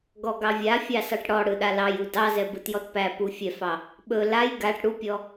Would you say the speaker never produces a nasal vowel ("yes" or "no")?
yes